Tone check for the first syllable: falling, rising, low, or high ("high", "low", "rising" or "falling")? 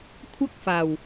high